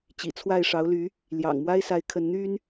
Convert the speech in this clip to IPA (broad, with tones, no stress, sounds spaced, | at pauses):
t͡ɕ ḭ˨˩ t͡sʰ w a˥˩ ɪ̯ ʂ ɑ˧˥ ʊ̯ l y˧˥ | l j ɑ̰˨˩ ŋ m w a˥ ɪ̯ s a˧˥ ɪ̯ kʰ ə˧˥ n n̪ y˥ n